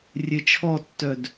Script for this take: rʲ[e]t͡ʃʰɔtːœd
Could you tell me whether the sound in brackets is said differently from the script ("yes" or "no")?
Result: no